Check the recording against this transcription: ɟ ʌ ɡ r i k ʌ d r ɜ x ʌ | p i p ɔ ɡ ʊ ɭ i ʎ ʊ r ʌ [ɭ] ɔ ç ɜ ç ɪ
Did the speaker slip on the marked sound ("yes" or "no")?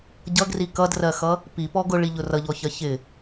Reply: yes